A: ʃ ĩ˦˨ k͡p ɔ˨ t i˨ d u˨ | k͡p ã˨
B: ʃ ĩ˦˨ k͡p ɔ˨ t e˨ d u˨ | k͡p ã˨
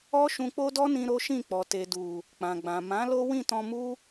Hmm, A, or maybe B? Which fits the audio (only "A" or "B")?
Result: B